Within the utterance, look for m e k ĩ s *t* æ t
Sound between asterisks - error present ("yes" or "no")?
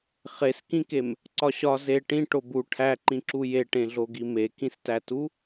no